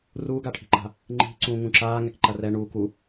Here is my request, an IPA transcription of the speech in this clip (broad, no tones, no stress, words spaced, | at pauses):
ruːɡaʈʰi̤ǃa̤ | ŋ͡ǃi̤ ǀũːŋũǁaː ŋɛkǃɐrɛ ɳuː ku